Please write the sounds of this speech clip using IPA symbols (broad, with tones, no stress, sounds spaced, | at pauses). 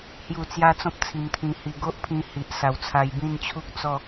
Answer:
h j u˥˧ t͡s j a˦ t͡s ɔ̃˦ p̚ t͡sʰ i˧ m t̪ʰ ĩ˧ h i˧ ɡ o˦ ʔ pʰ ĩ˧ h i˨ ʔ s a˨˩ w t͡sʰ a˧ j b ĩ˥˧ n t͡ɕʰ u˦ k̚ t͡s ɔ˥˧